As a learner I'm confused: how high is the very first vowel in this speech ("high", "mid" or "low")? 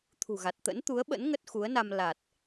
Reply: high